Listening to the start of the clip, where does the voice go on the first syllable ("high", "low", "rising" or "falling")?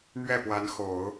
falling